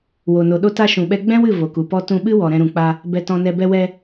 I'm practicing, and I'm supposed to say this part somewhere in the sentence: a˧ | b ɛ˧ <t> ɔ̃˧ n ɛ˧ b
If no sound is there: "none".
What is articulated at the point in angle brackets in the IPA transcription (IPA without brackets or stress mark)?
t